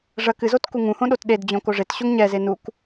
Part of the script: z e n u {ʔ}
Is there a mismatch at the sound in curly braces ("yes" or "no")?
yes